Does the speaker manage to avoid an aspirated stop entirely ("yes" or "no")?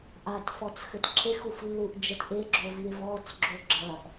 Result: no